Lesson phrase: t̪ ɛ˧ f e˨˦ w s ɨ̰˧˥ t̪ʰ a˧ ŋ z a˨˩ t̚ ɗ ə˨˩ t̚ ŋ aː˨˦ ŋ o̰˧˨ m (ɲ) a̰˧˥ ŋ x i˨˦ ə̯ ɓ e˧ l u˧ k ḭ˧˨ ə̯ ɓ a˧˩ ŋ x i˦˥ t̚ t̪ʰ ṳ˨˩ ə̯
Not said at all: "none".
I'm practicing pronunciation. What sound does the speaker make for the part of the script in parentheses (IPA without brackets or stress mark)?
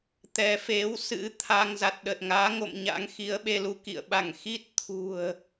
ɲ